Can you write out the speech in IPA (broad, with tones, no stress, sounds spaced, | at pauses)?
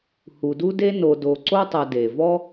h u˨ d u˦ d e˦ n o˨ d o˨ ǀ o˦ tˤ ɐ˨ d e˩ v ɔ˦